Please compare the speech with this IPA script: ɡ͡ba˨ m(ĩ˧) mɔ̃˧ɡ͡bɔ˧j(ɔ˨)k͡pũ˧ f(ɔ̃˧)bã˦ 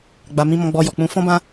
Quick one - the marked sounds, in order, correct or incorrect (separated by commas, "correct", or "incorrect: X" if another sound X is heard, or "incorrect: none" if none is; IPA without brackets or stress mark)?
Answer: correct, correct, incorrect: ɔ̃˦